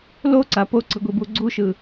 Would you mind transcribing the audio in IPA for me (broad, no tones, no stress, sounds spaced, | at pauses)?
l o ǀ a p o ǀ ɯ ɡʷ i b u ɡ͡ǀ u ʃ ɯ